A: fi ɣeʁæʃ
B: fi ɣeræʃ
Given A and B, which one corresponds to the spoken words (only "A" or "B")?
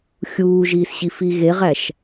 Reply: A